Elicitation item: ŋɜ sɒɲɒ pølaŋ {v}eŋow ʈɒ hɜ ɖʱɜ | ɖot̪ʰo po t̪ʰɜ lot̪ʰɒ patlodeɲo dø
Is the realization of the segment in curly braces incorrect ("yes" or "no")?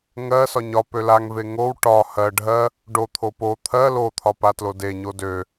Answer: no